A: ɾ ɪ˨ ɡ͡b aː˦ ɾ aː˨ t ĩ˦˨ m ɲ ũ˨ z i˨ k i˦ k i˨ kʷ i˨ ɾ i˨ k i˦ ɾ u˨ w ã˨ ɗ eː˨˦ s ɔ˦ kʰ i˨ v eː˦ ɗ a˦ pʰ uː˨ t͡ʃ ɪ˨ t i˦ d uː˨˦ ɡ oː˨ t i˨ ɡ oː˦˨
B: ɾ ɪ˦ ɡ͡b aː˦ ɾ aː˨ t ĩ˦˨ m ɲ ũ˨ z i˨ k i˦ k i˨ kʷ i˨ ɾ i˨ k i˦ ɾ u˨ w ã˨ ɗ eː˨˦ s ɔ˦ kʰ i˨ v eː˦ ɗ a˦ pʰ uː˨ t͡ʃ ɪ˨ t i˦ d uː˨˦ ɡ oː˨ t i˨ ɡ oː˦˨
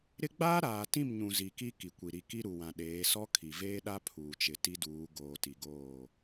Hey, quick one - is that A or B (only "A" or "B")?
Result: B